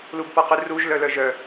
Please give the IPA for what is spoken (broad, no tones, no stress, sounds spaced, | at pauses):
l u b p ɔ q ʉ r u ʒ l œ l œ ʒ œ